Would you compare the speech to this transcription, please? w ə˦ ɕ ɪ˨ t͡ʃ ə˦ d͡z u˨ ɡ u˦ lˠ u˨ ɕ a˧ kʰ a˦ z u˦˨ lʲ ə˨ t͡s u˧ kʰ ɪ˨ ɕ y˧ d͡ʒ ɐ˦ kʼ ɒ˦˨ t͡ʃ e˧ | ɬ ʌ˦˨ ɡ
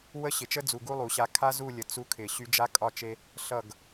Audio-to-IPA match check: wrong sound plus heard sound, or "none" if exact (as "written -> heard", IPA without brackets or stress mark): ɐ˦ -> a˦